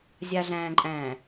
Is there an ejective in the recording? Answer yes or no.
yes